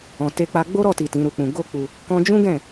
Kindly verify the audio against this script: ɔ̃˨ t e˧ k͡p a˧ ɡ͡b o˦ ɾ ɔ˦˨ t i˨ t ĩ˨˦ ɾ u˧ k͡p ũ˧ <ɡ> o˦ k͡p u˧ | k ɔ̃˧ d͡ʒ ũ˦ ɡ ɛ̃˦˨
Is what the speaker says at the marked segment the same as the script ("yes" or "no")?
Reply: yes